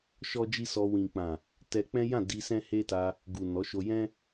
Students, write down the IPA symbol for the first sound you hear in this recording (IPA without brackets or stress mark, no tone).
ʃ